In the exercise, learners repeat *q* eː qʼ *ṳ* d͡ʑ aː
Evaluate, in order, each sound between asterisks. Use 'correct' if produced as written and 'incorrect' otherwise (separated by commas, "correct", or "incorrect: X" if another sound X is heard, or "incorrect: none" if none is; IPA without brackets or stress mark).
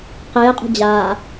correct, correct